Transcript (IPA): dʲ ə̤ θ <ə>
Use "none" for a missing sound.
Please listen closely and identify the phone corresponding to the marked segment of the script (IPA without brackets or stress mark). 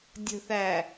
æ